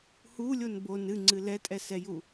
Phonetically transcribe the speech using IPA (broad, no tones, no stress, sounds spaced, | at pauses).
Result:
h u lʲ o n b o n ɨ ŋ͡ǀ ɨ l ɛ tʼ ɛ s ɛ j u